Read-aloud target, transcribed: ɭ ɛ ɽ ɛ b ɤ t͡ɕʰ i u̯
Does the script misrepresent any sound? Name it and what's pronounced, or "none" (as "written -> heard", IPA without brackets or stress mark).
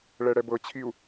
none